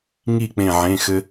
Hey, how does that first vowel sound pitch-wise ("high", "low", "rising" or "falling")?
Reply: falling